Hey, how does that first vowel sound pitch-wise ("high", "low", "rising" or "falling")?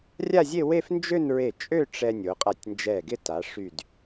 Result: falling